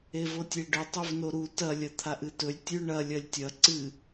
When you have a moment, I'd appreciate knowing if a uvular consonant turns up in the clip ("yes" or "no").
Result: no